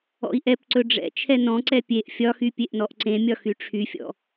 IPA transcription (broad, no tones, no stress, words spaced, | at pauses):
ɔ̰i̯ʔɛpǀɵ ɖ͡ʐɛ̰ t͡ʃʰɛnɔ̃ǀɛ pʲeʔ fʲɒxy pʲeʔnɔʔǀẽmʲɒ xyʈ͡ʂʰyfʲɔ̰